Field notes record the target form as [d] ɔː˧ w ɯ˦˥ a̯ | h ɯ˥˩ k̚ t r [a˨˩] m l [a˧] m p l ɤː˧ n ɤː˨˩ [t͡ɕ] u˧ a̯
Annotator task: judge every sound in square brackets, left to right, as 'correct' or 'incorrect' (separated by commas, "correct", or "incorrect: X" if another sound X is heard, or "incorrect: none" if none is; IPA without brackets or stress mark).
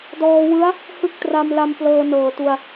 correct, incorrect: a˧, correct, incorrect: t